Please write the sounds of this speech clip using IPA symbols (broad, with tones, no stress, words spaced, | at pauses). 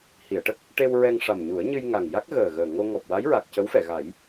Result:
hi˨˩˨ə̯ʈə˦˥k̚ | ʈe˧w ɹɛ˧ŋʂa˨˩mɲu˨˩˦ə̯ ɲɨ˧jŋa˨˩ŋ ja˦˥k̚ɣəː˨˩ɣəː˨˩ ŋo˧ ŋɔ˨˩p̚wa˧˥jɹa˨˩k̚ cə˧˥wfɛ˨˩˨ɣa˨˩˦j